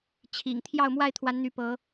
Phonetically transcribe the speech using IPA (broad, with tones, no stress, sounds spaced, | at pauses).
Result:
t͡ɕʰ ḭ˨˩ ŋ t̪ʰ j ɑ˥˨ ʊ̯ m w a˥˨ ɪ̯ t̪ʰ w a˨˦ n n̪ y˨˦ p ɤ˨˦